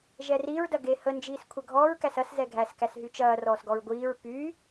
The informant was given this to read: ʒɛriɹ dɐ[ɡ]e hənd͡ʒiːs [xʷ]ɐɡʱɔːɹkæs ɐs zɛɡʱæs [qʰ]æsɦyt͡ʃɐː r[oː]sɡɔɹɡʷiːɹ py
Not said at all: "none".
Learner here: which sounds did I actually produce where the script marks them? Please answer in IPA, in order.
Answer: ɡ, kʷʰ, k, ɔː

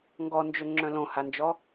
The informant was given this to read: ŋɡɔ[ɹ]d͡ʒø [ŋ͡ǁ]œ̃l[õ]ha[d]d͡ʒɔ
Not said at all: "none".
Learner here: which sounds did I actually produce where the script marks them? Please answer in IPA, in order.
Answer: n, ŋ͡ǁ, õ, n

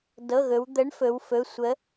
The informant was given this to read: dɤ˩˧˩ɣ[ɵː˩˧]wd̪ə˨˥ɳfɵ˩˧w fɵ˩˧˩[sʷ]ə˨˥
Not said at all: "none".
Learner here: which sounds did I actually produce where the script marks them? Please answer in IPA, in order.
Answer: ɵ˩˧, sʷ

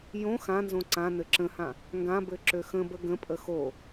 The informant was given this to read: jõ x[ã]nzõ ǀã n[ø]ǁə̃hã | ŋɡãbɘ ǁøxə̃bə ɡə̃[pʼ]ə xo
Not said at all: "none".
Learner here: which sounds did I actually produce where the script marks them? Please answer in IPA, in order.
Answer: ã, ɘ, pʼ

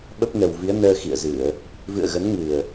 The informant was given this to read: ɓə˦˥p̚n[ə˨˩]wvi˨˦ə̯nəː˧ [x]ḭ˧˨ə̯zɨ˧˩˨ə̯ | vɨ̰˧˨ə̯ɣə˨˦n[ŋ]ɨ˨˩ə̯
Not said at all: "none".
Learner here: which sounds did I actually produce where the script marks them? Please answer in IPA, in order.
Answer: ə˨˩, x, ŋ

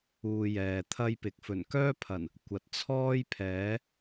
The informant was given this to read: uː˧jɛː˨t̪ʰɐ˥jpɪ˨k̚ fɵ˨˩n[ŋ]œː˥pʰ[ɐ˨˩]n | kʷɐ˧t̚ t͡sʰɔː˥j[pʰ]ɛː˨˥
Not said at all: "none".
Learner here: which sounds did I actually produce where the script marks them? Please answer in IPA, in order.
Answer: k, ɐ˨˩, pʰ

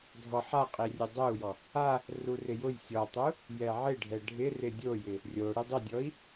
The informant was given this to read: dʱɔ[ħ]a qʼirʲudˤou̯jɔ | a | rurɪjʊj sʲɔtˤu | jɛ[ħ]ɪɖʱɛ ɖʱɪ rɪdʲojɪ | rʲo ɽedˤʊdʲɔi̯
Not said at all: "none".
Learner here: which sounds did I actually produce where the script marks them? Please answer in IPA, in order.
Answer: ħ, ʕ

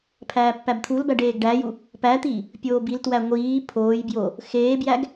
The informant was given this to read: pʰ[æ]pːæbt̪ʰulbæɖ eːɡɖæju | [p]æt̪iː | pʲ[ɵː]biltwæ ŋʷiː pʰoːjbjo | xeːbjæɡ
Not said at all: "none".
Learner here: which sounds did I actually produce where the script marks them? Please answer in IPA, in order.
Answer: æː, p, oː

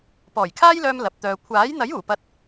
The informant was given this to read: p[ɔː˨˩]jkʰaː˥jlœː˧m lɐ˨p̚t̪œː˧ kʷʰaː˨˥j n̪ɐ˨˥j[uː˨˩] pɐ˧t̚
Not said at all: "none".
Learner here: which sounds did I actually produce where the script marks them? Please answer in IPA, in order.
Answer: ɔː˨˩, uː˨˩

